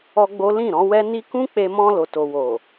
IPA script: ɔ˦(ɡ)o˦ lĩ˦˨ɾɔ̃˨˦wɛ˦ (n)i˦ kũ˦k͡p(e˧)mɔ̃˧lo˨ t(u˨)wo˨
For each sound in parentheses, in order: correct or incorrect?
incorrect, correct, correct, incorrect

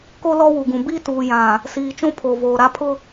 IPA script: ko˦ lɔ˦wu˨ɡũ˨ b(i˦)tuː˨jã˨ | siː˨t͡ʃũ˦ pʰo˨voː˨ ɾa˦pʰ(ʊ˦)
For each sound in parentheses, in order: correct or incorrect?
correct, correct

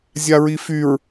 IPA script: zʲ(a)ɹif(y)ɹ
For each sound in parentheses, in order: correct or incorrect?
correct, correct

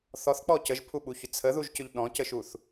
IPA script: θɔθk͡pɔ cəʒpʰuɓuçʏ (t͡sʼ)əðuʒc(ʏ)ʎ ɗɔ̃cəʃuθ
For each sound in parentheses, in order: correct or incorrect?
incorrect, correct

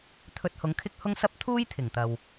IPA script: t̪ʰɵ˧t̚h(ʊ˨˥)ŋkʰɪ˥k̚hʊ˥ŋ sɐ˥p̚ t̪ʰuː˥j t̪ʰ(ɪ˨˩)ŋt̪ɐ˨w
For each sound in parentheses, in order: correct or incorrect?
incorrect, correct

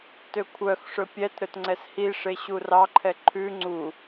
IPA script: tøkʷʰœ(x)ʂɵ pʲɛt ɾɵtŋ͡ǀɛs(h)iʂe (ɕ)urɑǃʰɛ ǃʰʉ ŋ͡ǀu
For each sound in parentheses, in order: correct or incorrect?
correct, correct, correct

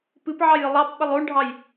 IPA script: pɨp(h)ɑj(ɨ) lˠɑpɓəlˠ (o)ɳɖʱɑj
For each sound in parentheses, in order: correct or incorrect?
incorrect, correct, correct

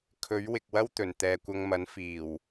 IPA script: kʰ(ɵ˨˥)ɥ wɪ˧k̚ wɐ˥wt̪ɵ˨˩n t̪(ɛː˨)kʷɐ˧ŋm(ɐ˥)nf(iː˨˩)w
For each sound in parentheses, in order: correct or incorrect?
correct, correct, incorrect, correct

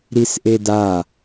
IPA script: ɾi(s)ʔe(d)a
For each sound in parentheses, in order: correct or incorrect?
correct, correct

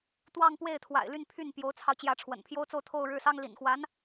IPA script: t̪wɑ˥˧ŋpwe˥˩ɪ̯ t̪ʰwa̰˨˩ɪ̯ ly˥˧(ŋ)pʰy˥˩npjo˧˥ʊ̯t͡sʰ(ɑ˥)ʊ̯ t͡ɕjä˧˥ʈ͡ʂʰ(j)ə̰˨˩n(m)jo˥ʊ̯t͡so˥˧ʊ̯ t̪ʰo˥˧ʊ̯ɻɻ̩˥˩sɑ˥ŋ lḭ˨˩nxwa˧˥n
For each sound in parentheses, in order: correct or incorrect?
incorrect, incorrect, incorrect, incorrect

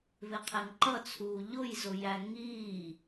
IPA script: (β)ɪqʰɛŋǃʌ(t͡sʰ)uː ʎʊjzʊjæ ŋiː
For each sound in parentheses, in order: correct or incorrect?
correct, correct

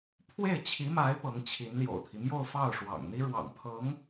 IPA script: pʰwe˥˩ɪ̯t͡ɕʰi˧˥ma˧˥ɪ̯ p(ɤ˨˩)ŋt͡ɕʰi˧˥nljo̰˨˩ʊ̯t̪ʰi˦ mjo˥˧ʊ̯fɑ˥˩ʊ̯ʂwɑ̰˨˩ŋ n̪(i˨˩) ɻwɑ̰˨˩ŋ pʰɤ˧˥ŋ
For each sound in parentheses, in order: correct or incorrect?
incorrect, incorrect

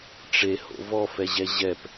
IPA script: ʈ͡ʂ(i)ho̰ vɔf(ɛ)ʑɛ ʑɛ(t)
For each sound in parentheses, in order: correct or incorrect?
incorrect, correct, incorrect

